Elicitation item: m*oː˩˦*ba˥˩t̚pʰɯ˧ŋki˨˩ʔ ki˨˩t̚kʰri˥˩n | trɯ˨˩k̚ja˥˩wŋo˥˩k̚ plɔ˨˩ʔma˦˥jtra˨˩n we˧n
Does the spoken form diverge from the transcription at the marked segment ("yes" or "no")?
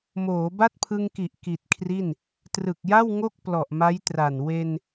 no